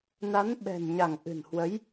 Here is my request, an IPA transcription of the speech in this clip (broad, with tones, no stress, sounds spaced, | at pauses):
n a˨˦ n ɓ ɛ̤˨˩ n ɲ a˧˩ ŋ ʔ ɨ̤˨˩ n h w ə˨˦ j